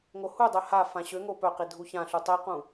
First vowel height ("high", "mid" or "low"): mid